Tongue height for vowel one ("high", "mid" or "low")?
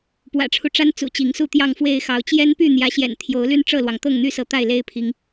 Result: low